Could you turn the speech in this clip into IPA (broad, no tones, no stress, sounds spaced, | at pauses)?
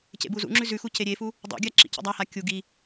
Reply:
c ḛ b u z ṵ ŋ͡ǁ ʉ z ʉ x u c e ɾʲ e f u | dˤ ṵ ɡʲ a ǁ ḭ c ḭ dˤ a h a kʲ u ɡ i